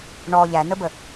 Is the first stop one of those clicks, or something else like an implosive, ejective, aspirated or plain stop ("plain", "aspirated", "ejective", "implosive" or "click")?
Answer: plain